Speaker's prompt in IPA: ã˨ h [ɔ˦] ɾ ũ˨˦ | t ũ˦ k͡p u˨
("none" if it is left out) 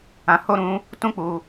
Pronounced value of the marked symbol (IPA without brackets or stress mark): o˦